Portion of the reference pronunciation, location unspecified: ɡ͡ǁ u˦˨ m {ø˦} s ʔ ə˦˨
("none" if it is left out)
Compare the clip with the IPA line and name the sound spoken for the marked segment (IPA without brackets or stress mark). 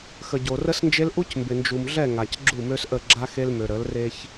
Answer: ø˦